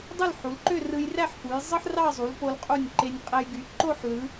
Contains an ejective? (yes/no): yes